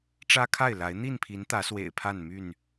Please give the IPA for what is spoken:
ʈ͡ʂ ä˦ kʰ a˥˨ ɪ̯ l a˨˦ ɪ̯ n̪ i˥˨ n pʰ i˨˦ n t̪ ä˨˦ s w ḛ˨˩ ɪ̯ pʰ a˥˨ n m y˥˨ n

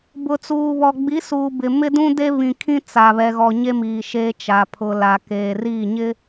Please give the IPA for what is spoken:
b ʊ˨ t͡s uː˨ β ɔ˨ ɡ͡b i˨˦ s uː˨ b ɪ˨ m ɪ˦ d ũ˦ d e˦ β ĩ˨ kʰ ĩ˦ t͡s a˨ β ɛ˨ ɣ ɔ˨ ɲ e˦ m iː˨ ʃ e˦ t͡ʃ a˨ pʰ ʊ˨ l a˨ k eː˨ r i˦˨ ɲ ɪ˦

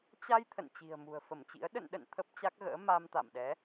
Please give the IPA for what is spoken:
t͡ɕ a˧ j t̪ʰ ə̰˧˨ n t͡ɕ i̤˨˩ ə̯ m ṳ˨˩ ə̯ f ə˧˩ m t͡ɕ ḭ˧˥ ə̯ ɗ ə̰˧˨ n ɗ ə̰˧˨ n t̪ʰ ə˦˥ p̚ t͡ɕ a˦˥ k̚ ɣ ə̰ː˧˥ m a˧ m t̪ a̰˧˨ m ɗ ɛ˨˦

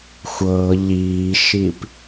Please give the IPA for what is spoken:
xʷ ɤ ʎ iː ʃ i p

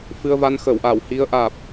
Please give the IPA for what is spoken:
f ɨ˧ ə̯ v a˧ n x əː˧˩ w ʔ aː˧˩ w h i˨˦ ə̯ ʔ aː˨˩ p̚

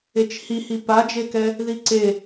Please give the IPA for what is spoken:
e t͡ʃ h i h i p a d͡ʒ e k ɛ | ð i ǀ e

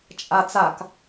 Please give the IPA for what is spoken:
t͡ʃʼ a t͡s a k

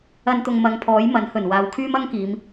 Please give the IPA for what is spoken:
ɐ˧ n t̪ ʊ˨ ŋ m ɐ˨˧ ŋ pʰ ɔː˨˥ j m ɐ˨˥ n h ɵ˨˩ n w aː˨˧ w kʰ yː˥ m ɐ˥ ŋ k iː˨˧ m

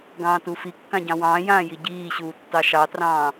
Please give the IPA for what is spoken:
ɡ ɑ̃ː t u f i kː ã ɟ ɑ̃ w ɑ̃ː j ãː j i ɟ iː ɕ uː tː ɑ ʃ ɑ t r ɑ̃ː

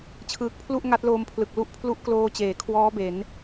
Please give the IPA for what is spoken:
t͡ɕʰ ɯː˨˩ k̚ pʰ l u˥˩ ʔ ŋ a˦˥ t̚ l oː˧ m pʰ l ɯ˨˩ k̚ l u˦˥ ʔ pʰ l u˦˥ ʔ k l oː˧ t͡ɕ eː˩˦ kʰ w ɔː˦˥ b e˩˦ n

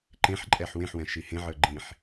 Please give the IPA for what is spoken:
ǃ ẽ ħ ǃʼ ɛ ħ w ẽ ħ w ɛ̃ ʃ i h ẽ ʕ ə˞ ɡ͡ǃ ĩ ħ

